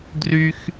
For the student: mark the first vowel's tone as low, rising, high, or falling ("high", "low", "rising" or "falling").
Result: high